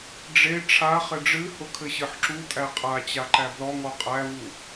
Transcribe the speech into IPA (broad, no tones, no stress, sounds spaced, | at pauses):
ɖ͡ʐ e ʈ͡ʂʰ a χ ɘ ɖ͡ʐ ɨ h ʊ kʰ ɘ ɕ ɨ ħ ǁ u tʼ æ qʼ a t͡ɕ a ǃ æ b l ɔ ŋ ɔ qʼ æ v u